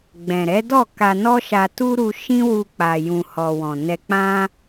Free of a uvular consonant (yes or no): yes